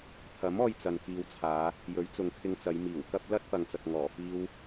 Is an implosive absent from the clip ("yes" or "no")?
yes